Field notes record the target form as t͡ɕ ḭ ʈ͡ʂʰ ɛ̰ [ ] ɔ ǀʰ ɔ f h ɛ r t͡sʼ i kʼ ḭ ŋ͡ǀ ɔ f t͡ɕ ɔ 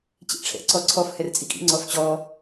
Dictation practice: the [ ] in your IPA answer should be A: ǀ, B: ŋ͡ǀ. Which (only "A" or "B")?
A